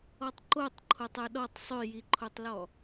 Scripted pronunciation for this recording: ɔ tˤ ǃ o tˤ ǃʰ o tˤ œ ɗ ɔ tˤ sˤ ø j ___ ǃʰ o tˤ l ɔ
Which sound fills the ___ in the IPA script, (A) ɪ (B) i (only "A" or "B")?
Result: B